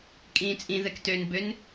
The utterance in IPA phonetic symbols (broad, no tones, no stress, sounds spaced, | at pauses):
kʼ ĩː t͡sʼ ĩ ð ɛ k t ø n b ø n